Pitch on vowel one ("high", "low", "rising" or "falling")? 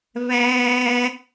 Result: high